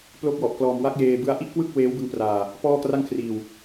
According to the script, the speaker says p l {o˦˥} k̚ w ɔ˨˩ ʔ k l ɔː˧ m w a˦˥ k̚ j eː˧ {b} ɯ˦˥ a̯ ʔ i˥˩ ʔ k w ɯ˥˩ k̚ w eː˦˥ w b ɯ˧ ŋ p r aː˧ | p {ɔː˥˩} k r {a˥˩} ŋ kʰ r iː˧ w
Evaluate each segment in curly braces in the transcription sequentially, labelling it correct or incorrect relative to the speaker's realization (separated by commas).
correct, correct, correct, correct